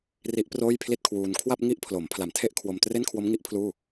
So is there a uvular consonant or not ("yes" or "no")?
no